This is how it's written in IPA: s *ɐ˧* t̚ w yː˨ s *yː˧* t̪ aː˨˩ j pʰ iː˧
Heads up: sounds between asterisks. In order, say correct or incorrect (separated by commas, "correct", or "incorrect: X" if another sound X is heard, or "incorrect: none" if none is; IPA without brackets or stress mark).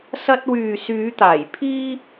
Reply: correct, incorrect: yː˨˧